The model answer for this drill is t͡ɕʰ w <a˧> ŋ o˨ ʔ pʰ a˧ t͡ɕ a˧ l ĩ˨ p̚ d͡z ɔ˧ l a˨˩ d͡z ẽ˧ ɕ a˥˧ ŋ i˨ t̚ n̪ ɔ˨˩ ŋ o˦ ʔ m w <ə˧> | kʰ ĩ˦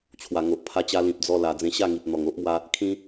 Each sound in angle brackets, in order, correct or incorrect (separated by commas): incorrect, incorrect